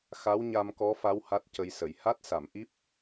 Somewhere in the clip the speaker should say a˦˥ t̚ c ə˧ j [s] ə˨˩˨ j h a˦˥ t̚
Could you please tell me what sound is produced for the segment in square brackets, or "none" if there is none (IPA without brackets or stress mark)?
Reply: s